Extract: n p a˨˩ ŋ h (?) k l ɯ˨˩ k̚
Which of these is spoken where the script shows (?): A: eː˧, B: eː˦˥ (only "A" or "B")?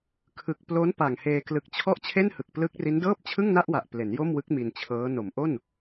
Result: A